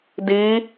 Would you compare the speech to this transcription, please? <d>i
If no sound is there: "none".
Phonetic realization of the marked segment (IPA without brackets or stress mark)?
d